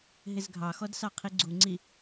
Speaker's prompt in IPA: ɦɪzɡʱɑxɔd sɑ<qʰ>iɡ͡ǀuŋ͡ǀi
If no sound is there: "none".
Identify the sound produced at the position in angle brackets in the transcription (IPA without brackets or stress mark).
qʰ